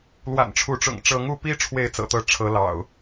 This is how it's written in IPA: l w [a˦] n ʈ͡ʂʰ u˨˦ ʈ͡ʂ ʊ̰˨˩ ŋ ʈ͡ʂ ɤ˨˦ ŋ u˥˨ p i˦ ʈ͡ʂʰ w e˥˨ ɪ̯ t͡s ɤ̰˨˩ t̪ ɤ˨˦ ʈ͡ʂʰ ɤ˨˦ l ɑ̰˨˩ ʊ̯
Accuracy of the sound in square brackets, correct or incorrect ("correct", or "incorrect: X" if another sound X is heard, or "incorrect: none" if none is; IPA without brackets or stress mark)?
incorrect: a̰˨˩